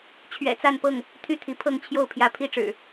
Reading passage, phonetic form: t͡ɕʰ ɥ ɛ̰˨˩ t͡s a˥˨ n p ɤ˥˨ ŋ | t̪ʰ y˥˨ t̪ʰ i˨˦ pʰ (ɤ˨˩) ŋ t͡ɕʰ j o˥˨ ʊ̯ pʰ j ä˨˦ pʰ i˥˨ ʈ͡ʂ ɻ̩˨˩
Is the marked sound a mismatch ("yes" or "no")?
yes